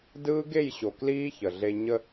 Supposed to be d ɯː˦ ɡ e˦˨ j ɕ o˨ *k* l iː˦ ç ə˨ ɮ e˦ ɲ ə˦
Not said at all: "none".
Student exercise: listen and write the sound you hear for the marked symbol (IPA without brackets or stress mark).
k